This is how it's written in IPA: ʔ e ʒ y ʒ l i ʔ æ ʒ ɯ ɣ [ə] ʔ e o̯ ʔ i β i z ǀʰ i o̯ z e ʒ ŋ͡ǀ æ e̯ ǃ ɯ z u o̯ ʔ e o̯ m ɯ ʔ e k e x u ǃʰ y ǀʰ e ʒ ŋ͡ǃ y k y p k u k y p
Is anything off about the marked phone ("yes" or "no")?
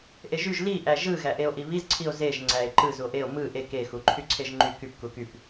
yes